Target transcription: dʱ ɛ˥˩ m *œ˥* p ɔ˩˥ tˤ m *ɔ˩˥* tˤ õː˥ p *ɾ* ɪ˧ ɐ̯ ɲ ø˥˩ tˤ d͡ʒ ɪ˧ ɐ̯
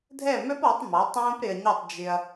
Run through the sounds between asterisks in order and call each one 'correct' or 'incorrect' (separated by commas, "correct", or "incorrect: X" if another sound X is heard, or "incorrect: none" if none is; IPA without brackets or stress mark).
correct, correct, correct